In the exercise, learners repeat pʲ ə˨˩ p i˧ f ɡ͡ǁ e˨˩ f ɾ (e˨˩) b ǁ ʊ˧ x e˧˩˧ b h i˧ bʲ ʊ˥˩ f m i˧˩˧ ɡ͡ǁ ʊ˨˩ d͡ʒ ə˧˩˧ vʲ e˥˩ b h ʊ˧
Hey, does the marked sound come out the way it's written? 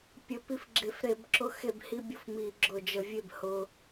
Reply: no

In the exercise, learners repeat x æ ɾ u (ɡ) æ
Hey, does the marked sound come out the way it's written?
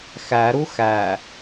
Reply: no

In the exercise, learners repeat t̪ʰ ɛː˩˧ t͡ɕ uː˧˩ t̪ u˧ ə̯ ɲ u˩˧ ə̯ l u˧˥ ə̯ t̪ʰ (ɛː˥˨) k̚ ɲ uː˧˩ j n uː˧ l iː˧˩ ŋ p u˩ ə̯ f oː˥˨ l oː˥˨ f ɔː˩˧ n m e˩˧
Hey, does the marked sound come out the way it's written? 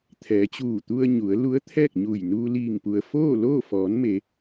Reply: yes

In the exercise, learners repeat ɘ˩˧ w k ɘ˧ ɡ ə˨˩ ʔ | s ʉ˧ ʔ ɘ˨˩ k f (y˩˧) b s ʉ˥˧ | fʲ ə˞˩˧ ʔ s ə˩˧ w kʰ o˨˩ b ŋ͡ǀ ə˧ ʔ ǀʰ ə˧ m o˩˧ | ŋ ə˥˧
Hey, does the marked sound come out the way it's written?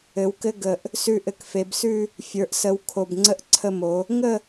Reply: no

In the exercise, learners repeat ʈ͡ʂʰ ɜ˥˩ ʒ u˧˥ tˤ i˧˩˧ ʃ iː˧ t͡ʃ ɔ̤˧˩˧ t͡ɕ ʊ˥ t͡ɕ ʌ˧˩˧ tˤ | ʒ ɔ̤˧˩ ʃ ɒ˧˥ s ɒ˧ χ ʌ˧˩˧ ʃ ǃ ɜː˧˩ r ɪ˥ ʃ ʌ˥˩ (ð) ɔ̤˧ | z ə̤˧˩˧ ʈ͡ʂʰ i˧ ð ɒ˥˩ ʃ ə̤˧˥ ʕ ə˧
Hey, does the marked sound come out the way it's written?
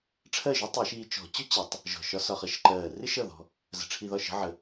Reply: yes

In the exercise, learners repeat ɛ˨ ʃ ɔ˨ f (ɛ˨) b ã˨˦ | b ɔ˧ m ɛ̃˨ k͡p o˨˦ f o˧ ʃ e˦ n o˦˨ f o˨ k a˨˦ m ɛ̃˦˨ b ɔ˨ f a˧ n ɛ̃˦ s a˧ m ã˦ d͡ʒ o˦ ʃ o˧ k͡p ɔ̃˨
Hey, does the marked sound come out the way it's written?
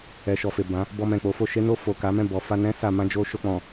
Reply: no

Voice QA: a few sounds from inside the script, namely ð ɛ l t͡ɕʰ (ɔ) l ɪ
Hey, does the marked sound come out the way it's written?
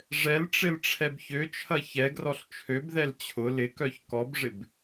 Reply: no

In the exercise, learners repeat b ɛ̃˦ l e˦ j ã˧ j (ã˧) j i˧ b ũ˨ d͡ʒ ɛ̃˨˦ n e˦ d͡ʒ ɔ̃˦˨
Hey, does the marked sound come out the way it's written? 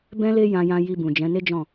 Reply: yes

